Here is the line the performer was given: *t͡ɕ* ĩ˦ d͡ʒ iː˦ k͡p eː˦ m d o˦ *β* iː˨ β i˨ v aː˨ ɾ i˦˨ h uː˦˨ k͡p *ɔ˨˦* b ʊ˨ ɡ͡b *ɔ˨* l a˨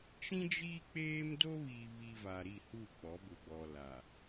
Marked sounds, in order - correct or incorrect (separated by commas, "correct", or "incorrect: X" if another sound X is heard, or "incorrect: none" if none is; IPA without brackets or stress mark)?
incorrect: t͡ʃ, correct, correct, correct